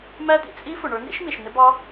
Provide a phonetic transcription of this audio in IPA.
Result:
m æ˦˥ d̪ ḭ˩ t͡sʼ i˦˥ f ʊ˩ ɳ ə˞˨˦ n̪ ḭ˦˥ ʃ m i˩ ʃ n̪ ɪ˦˥ b ɑ˦˥

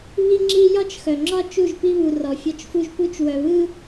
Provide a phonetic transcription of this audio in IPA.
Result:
β i˦ ŋ͡ǁ i˦ j ɒ˦ t͡ʃ x œ˨ ŋ͡ǁ ɒ˦ t͡ʃ u˦˨ ʒ p i˦ β u˨ r ɔ˨ fʲ ɒ˦ t͡ʃ f u˦ ʒ p u˦ t͡ʃ w œ˨ β ɯ˦

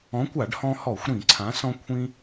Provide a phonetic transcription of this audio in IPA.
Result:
ɔ̃˨˥ kʷ a˧˩˧ ɖ h ɔ̃˧ h ɔ˧˩˧ xʷ ɾ ĩ˧˩˧ ǀʰ ã˨˥ s ɔ̃˧ kʷʰ ĩ˧

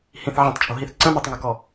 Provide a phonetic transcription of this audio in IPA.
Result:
h ĩ θ ʕ ĩ tˤ t͡ʃʼ o̤ ɦ i θ ǀ ə̃ m o tˤ ŋ ɵ k ɔ

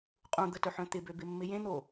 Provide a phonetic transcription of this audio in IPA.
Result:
qʼ ũ d̪ ə t œ ħ œ̃ t̪ ɪ b ø b ɪ mː ɪ j ẽ n̪ o

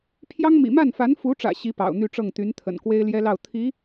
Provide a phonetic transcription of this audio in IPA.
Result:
pʰ j ɑ˥ ŋ m ḭ˨˩ m a˥˩ n f a˧˥ n f u˧˥ ʈ͡ʂ ä̰˨˩ ɕ i˧˥ p ɑ̰˨˩ ʊ̯ n̪ y˥˧ ʈ͡ʂ ɤ˥˩ ŋ t̪ y˧˥ n t̪ʰ ə̰˨˩ n k w e˥ ɪ̯ l j ɛ˥ l ɑ˥˩ ʊ̯ t̪ʰ i˧˥

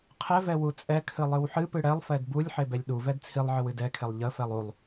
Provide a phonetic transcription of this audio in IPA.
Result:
qʰ ɛ v ɛ w u t͡sʼ ɛ kʰ ɨ lˠ ɨ w ħ ɨ p ɨ ɽ ɛ lˠ f ɛ d b u lʲ ħ e b ɛ lʲ ɗ u v ɛ d t͡sʰ i lˠ ʕ ɨ w ɨ d ɛ kʰ e lˠ ʎ ə f ɛ lˠ u lˠ

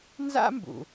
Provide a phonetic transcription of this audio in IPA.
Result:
n z a̰˥ m b ṵ˩

